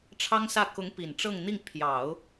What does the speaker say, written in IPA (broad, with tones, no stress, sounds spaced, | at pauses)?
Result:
ʈ͡ʂʰ ɑ˥ ŋ s ä˥˩ k ʊ˧˥ ŋ p i˨˩ n ʈ͡ʂ ɤ˥˧ ŋ n̪ i˥˩ ŋ pʰ j ɑ˨˩˦ ʊ̯